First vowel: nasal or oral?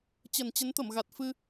oral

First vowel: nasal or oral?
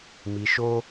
oral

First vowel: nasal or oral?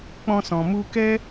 nasal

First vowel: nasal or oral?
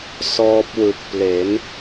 oral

